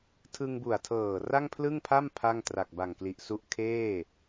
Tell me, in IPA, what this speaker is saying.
tʰ ɯ˧ ŋ b u˨˩ a̯ tʰ ɤː˨˩ r a˥˩ ŋ pʰ l ɯ˥˩ ŋ pʰ a˥˩ m pʰ a˥˩ ŋ t r a˨˩ k̚ b a˨˩ ŋ k l i˨˩ ʔ s u˦˥ ʔ kʰ eː˥˩

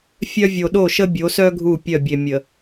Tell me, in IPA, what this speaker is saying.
fʲ œ˦ vʲ o˨ ɗ o˦˨ ʃ ə˦ bʲ o˨˦ s œ˦ ɡʱ u˦˨ pʲ œ˦˨ bʲ e˨ mʲ ə˨

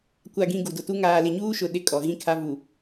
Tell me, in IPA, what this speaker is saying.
kʷ a˨ ɡ ĩ˨ ɡ u˨ d ʊ˨ t u˦ ŋ aː˨ l ɪ˨ ɲ uː˦ ʃ ʊ˨ ɗ ɪ˦˨ kʼ ɔ˨ ɣ ĩ˦ kʰ a˦ v u˨

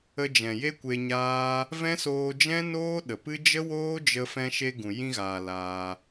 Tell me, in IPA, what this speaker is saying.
ə˧ d͡ʒ ɛ̃˨ j e˦ kʷ e˧ ɲ aː˦ | v ɛ̃˦ s oː˧ d͡ʒ ɛ̃˦ n oː˦ ɗ ə˨ p ɨ˦ d͡ʒ ə˦ w oː˦ d͡ʒ ə˧ f ɛ̃˧ ʃ e˧ ɡ ũ˨ j ĩ˧ ɣ aː˨ l aː˧

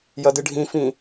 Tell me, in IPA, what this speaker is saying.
j ɐ d ɨ ɖʱ ĩ f ĩ

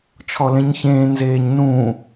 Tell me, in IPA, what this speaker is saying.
t͡ʃʰ ɔ l ẽ ɲ ç ẽː n z eː ɲ n ũː

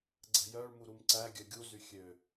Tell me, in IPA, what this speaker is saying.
ɡ͡ǀ ɛ̤ j œ ɭ m u ɾ u m ǀ æ ɡʲ œ ɡʲ u z y xʲ ø

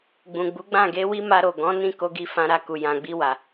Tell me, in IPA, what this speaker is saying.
ɡ͡b ũ˨ ɡ͡b u˨˦ ɡ͡b ã˦˨ ɡ e˧ w i˦ m a˧ ɾ o˨ ɡ ɔ̃˨˦ n ĩ˦˨ k o˧ ɡ i˧ f ã˧ ɾ a˧ k u˨ j ã˨ ɡ͡b i˧ w a˨

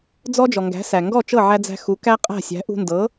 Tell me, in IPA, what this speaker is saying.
d͡z ɔ˥ d͡ʒ ɔ˩ ŋ ɡ æ̤˩˥ s æ˩ ŋ ɡ ɔ˥˩ t͡ʃ ɤ˥˩ ʕ æ˧ d͡z æ̤˧ x u˩˥ k æ˥ qʼ æ̤˥˩ sʲ æ̤˩˥ ʔ ṳ˧ n d ɤ˩˥

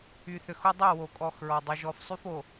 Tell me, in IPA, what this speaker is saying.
y˨ θ ø˨ x ʊ˦ dˤ o˦˨ w o˨ kʼ ɔ˦˨ x ɹ ɔ˨ dˤ o˨ ʒ ɔ˨ f sˤ y˦ f o˨

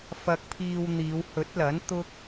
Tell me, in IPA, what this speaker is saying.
f ɐ˧ k̚ pʰ iː˧ w n̪ iː˨˧ w h ɵ˨˥ t̚ l ɐ˨˥ n t̪ ʊ˥ k̚

